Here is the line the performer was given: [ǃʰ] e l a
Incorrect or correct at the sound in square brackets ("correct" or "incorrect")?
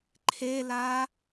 correct